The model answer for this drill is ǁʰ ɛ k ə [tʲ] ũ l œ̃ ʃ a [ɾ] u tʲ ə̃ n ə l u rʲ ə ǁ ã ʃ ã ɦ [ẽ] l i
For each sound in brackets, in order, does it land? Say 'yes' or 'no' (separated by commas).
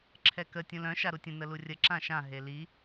yes, yes, no